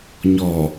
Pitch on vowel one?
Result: low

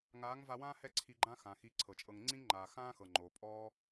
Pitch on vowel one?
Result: rising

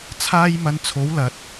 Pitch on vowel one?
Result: high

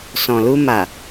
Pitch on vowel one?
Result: low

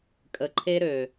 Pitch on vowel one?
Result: low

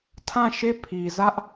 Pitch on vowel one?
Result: falling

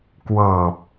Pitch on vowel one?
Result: low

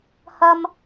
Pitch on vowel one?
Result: high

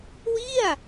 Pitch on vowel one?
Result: falling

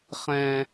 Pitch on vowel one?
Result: high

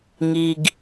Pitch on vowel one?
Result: low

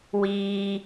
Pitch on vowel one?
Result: high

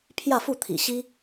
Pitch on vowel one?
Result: falling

